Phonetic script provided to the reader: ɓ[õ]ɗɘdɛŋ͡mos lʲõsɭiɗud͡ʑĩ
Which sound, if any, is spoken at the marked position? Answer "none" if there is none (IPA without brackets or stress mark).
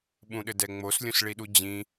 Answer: ũ